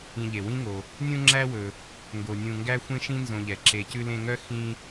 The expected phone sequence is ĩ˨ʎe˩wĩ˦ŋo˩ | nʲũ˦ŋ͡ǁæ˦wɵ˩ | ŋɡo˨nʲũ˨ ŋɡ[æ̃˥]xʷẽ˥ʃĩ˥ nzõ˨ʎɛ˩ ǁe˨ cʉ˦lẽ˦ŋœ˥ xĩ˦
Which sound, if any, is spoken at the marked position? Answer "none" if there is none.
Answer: æ˥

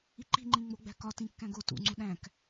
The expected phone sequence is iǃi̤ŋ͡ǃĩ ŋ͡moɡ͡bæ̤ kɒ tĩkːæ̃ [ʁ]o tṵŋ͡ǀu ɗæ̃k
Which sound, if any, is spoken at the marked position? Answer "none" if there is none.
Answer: ɡ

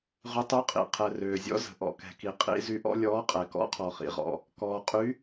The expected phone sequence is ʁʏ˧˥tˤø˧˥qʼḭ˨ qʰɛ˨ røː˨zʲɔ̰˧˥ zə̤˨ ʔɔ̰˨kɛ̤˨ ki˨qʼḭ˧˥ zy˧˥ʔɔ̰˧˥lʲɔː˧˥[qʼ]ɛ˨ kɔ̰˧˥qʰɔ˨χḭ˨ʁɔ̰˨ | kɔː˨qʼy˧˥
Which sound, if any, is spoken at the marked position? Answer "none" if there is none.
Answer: qʼ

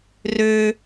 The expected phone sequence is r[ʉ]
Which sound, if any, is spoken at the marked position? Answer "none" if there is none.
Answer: ø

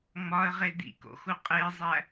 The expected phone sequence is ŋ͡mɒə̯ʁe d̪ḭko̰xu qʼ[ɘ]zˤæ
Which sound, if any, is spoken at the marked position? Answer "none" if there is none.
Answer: e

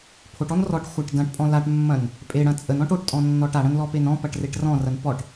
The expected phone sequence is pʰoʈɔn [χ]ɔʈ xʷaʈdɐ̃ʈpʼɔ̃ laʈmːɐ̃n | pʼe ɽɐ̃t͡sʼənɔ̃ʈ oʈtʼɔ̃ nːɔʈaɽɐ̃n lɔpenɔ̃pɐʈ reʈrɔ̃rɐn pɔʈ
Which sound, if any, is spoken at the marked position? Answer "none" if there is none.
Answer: r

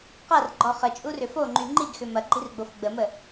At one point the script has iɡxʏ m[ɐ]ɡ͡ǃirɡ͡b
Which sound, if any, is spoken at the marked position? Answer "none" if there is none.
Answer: ɐ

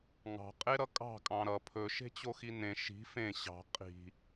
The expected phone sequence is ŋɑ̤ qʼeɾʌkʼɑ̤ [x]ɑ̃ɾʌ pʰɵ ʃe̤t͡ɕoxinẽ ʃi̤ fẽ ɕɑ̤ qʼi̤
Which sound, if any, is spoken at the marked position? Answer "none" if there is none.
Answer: kʼ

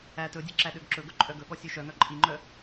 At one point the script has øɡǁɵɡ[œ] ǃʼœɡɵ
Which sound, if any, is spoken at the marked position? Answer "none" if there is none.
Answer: ɵ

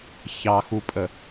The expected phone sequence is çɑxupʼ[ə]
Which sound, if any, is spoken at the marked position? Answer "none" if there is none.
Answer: ə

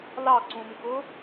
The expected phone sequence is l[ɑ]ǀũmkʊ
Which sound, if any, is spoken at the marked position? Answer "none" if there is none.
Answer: ɑ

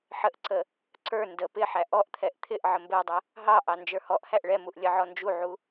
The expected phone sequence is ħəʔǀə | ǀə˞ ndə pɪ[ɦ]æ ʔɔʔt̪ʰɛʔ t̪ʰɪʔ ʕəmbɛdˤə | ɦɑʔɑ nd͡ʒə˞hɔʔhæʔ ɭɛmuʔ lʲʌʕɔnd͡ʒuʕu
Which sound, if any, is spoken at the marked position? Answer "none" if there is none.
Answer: ħ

